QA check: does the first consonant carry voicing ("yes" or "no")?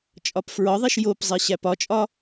no